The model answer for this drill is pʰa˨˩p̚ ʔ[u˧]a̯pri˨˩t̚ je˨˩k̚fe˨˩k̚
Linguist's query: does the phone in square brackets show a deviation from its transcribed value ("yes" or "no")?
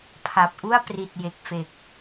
yes